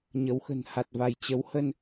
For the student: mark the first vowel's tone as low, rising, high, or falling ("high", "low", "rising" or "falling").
rising